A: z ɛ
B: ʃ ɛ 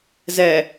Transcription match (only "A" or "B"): A